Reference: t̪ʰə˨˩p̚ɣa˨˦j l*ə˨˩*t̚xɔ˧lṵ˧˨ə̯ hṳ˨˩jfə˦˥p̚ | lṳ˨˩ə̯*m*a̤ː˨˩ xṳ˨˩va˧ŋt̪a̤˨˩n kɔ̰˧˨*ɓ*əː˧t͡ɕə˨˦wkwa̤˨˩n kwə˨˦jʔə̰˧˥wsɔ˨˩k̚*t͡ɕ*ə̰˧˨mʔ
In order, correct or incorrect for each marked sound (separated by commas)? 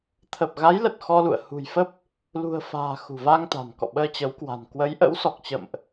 correct, incorrect, correct, correct